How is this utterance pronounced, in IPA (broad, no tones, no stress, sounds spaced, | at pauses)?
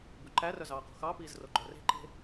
b ʉ ǃ æ r œ z ɑː q o̤ x ɑ p iː z r o ɡ͡ǃ œ r e̤ ǃ e̤